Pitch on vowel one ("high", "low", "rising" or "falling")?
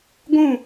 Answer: falling